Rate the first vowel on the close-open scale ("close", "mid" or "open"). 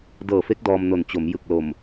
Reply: mid